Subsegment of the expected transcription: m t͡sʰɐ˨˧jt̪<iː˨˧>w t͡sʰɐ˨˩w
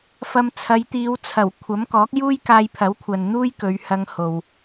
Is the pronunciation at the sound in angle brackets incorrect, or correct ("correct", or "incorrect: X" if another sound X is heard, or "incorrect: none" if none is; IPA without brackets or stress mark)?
correct